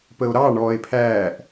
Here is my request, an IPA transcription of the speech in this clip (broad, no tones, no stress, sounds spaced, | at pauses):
p ə o̯ ɾ ɑ ɳ ɔː e̯ pʰ æː ʔ